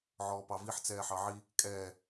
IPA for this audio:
ʕ ɔː p ɑ v i ħ t͡s ɛː ħ ɑ ʕ i | kʼ ɛː

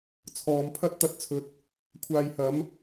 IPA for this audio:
t͡sʰ ɔː˨˧ m pʰ ɐ˥ t̚ t̪ ɐ˧ t̚ t͡sʰ ɵ˨ t̚ | kʷʰ aː˨ j h ɐ˨˧ m

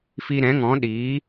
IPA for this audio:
f i˧ ɾ ɛ̃˨˦ ŋ ɔ̃˨˦ ɗ iː˨˦

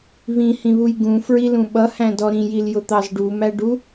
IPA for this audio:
β ĩ h ĩ β u j ɡ ũ f ɹ i l ũ ɓ ʌ h æ̃ d ɔ ɾ ĩ j i l j ʊ t̪ ɑ z ɖ u m æ ɖ u

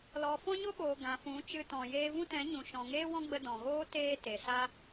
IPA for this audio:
l ɔ˨ f ɔ̃˦ ɲ o˦ ɓ oː˨ ɡ ã˨ f ũ˨˦ t͡ʃ ɨ˧ t ɔ̃˨ j eː˧ v ũ˦ t ɛ̃˨˦ ɲ ũ˨ ʃ ɔ̃˨ ŋ eː˦ w ɔ̃˦ ɡ͡b ə˧ d ɔ̃˨ ɣ oː˦ t eː˦ t e˨ s a˦

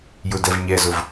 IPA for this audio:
j ʊ d ɛ v ɲ ɛ z ʊ v

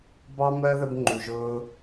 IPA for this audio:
b ɑ˦ m ɜ˦ ð ə˧ b ŋ͡ǃ u˨ ʒ ʊː˧

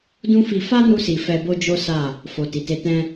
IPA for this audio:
d ũ˦ f i˧ f a˦ n u˧ s i˨ f ɛ˧ b o˦ d͡ʒ o˦ s a˦˨ | f o˨ t i˨ t e˧ t ɛ̃˧

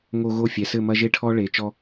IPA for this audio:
ŋ o˧ ɣ o˦˨ fʲ ɛ˨ s ɘ˦˨ m ɐ˦ ʒ e˦ ʈʰ ɔ˦ ɭ e˨˦ t͡ʃ ɔ˦

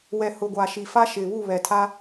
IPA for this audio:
w ɛ˨ h ʊ˨ ɡʷ a˨ ʃ i˨ f a˦ ʃ ɪ˨ β u˦˨ β ɛ˨ tʰ a˦

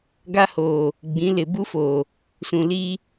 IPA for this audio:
ɡ a˦ h oː˨ | ɡ͡b ĩ˨˦ l ɪ˨ b u˦ f oː˨ | s ũ˨ l iː˦

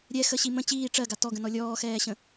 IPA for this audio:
ɾʲ ɛ x ə ɕ i m ə̃ t͡ɕ iː ʈ͡ʂ ɜ ɡ a t ɔ ɡ ə̃ n ɔ lʲ ɔː x ɛː ɕ ə̃

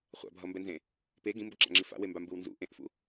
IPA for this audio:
χʷ a̰ bʱ ʌ m b ɛ n z ẽ | p e ɡ ĩ m b ʌ ǁ a̰ ŋ͡ǁ i f a̰ w e m b a m b ɯ w n z ṵ ʔ ẽ ʔ f ṵ

